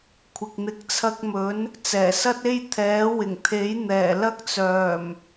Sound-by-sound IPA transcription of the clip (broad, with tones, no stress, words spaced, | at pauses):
kʷʰɪ˨k̚n̪ɪ˨˥k̚t͡sʰɐ˧k̚mɵ˨˥n | t͡sɛː˨˩sɐ˥t̚e˥j t̪ʰɛː˨˥wɪ˨˩ŋt̪ʰe˨˥j n̪ɛː˨˩lɐ˥k̚t͡sœː˨˩m